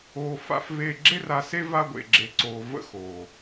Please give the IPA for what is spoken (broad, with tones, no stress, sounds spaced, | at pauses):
oː˨ f a̰˦ f v e˦˨ ɡ͡ǁ e˦ r a˨ s e˦ v a˦ ɡʷ ḛ˨ ɡ͡ǁ e˨ ǀ oː˨ v ə̰˦ x oː˨